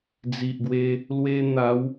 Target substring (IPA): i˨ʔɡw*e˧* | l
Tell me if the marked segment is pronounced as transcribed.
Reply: yes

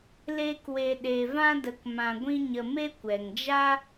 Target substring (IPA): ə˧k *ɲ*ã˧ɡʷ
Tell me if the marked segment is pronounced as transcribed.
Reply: no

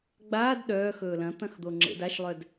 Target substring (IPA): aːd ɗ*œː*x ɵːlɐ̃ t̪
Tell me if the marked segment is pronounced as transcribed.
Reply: yes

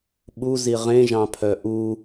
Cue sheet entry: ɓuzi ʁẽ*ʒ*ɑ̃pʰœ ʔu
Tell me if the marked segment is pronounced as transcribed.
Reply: yes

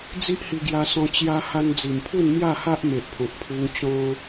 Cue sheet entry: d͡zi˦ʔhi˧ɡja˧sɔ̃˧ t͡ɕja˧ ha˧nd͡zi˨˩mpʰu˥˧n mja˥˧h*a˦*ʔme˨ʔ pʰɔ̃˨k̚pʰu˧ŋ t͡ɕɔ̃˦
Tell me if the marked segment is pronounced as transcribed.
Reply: yes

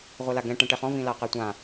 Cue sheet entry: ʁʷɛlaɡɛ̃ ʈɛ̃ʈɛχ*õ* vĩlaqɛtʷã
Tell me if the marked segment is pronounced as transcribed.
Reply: no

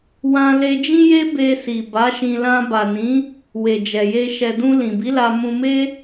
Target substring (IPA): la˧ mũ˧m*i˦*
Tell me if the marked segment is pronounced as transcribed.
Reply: no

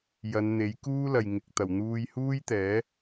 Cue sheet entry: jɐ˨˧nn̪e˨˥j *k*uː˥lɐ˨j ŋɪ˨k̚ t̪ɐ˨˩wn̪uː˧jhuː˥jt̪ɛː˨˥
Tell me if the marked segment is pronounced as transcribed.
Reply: yes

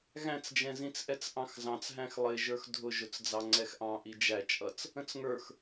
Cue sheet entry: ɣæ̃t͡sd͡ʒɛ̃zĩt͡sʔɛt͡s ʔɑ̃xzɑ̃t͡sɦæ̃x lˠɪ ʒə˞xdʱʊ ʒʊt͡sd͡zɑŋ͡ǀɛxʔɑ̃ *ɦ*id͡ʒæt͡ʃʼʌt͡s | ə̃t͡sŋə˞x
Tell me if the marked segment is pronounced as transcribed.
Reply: no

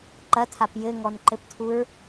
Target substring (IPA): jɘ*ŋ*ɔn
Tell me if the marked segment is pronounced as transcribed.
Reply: yes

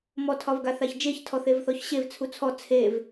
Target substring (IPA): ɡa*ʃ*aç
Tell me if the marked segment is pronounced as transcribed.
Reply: no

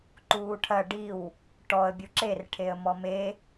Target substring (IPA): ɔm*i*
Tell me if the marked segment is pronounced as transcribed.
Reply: no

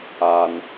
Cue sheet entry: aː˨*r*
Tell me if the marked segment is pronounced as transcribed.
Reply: no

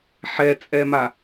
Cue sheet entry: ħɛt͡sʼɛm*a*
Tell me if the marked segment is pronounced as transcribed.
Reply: yes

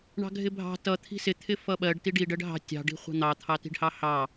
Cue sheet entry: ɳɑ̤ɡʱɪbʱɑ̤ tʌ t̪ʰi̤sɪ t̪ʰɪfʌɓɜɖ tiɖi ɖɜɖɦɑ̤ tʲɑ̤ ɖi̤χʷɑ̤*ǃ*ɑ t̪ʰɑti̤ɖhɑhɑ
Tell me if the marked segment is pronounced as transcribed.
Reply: no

